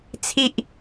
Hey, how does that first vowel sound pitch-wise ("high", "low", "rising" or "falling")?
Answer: high